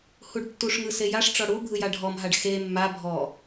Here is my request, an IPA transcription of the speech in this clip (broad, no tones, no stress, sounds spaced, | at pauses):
h u ɖ tː u ʂ ŋ ɯ s e j a ʂ ʈ͡ʂ ɔ ɽ u bʱ ɯ j a ɖʱ ɔ m ɦ a ɖ x e mː a bʱ ɔ